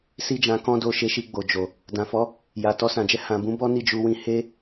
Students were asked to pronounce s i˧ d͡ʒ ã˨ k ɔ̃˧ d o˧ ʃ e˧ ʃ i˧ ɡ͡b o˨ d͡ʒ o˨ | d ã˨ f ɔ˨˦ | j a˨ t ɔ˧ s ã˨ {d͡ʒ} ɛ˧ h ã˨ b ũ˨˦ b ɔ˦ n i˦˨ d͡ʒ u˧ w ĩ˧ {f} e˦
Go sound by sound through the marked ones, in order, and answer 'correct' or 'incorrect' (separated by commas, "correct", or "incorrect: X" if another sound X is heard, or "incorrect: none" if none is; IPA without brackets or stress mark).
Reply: correct, incorrect: h